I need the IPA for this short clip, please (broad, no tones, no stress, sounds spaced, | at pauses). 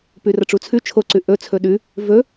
p ʉ r ɐ ʈ͡ʂ u t͡sʰ ʉ t͡ʃʰ o ǀ ʉ ʔ ɵ t͡sʰ ɵ ɗ ʉ | v ɵ